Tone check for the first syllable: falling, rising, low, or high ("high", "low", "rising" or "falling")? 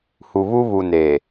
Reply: low